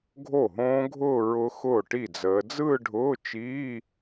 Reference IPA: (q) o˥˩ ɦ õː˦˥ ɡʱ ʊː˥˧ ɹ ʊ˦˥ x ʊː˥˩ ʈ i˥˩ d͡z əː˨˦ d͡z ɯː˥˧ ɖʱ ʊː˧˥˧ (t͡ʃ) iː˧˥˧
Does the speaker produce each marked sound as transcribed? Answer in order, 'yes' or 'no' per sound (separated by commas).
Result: no, yes